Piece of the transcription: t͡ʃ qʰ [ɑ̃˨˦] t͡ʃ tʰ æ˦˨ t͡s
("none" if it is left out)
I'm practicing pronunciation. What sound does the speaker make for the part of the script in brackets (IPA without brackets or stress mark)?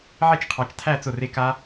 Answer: ɑ˨˦